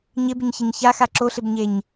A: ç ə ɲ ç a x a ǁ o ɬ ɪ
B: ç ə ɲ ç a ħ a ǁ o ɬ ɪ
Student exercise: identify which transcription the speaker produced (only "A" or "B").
A